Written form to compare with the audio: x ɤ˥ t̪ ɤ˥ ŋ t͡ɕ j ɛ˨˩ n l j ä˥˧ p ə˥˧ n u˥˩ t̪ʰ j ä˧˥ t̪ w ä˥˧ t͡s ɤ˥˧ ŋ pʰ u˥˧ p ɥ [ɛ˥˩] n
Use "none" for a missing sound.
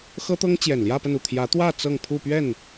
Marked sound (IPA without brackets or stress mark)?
ɛ˥˩